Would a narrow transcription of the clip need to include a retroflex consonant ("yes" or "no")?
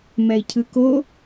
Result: no